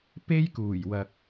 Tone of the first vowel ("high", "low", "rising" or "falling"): high